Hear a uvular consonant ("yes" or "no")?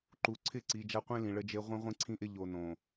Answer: yes